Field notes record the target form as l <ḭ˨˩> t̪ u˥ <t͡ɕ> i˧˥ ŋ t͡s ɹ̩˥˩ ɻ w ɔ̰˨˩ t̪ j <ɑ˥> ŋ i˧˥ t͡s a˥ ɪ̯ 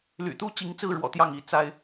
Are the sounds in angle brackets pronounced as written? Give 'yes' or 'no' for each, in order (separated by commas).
no, yes, no